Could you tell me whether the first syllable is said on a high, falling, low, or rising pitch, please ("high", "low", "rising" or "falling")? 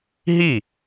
falling